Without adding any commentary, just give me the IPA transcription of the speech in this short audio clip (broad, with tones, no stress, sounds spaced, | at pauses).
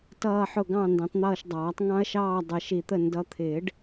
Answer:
t ʌː˦˨ ħ ʊ˦˨ ɡ ɑ̃˦˨ n d ɛ̃˨˦ tˤ n̪ ʌː˦˨ ʃ dˤ ɑː˨˩˦ tˤ ŋ ɑ̃˦ ɐ̯ ʃ ɑː˦˨ dˤ ə˨˩˦ ʃ i˨˩˦ t̪ ə˦˨ n d ʌ˨˦ t̪ʰ ɪː˨˩˦ ɖ